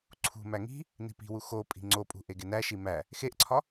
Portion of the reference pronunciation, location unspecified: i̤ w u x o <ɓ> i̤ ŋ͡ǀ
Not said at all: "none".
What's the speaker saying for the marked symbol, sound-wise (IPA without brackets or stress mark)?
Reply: pʼ